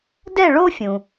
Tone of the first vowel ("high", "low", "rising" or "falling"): falling